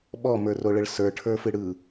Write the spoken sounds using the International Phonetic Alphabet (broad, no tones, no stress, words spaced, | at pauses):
ɓɔmə˞roɭəɭ sə˞ʈʰə˞fɨ ɽɯ